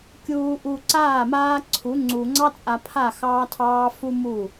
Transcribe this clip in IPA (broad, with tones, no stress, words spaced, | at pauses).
kʲuː˨ʔu˨ ǀaː˦˨maː˦ǀʰu˨˦ ŋ͡ǀu˨ ŋ͡ǀɑ˦t͡sʼa˨pʰa˦˨ xɑː˦tʰɑː˦ fu˦mu˦˨